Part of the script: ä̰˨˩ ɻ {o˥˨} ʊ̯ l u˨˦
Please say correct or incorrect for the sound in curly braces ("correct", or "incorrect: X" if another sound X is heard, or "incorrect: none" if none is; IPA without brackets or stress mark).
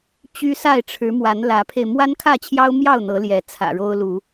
incorrect: o˦